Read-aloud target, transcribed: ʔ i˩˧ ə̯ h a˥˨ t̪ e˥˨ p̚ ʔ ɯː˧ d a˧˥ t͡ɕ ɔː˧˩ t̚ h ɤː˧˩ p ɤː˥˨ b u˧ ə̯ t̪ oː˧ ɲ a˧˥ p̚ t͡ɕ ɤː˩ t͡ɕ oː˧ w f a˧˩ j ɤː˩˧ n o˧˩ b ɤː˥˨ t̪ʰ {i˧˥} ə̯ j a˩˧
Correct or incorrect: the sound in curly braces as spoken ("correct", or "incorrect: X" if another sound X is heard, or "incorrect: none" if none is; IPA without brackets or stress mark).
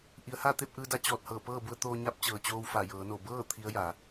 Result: correct